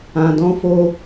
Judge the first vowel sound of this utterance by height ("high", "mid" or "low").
low